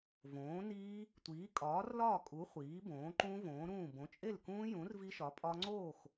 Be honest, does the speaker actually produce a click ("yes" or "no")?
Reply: yes